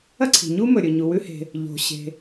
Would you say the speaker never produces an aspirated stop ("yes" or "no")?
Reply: no